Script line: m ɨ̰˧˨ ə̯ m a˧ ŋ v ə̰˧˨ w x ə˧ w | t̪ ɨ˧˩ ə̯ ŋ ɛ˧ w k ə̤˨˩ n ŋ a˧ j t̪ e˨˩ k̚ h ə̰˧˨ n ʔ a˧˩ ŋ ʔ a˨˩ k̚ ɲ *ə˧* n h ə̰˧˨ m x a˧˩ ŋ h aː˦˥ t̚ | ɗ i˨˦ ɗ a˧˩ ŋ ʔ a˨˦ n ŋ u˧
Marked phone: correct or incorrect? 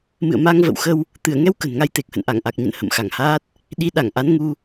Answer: incorrect